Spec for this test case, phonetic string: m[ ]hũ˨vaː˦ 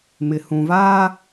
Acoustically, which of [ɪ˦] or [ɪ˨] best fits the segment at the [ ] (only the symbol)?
ɪ˨